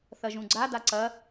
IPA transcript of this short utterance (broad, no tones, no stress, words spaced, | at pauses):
θɐʒũɡ͡ǀa daǀɐ